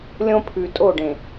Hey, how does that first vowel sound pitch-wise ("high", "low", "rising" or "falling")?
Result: high